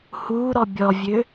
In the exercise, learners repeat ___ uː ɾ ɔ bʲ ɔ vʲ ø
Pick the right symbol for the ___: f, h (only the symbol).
h